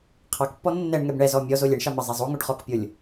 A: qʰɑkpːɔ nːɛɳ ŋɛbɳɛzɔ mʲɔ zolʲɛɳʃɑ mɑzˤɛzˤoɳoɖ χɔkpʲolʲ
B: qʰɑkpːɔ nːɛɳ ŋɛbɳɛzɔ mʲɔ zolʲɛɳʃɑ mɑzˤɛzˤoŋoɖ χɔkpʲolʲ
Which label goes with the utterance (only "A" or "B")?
B